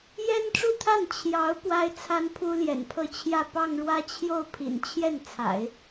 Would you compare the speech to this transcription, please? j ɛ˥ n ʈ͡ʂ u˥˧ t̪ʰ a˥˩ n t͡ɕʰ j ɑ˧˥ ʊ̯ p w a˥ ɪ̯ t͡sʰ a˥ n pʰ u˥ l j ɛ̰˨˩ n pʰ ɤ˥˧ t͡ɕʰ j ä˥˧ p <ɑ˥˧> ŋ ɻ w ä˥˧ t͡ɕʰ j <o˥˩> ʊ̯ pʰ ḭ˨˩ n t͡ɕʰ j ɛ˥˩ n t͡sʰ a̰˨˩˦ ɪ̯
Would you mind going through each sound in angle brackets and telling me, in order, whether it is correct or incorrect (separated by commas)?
correct, correct